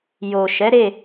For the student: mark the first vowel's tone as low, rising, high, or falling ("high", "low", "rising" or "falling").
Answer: low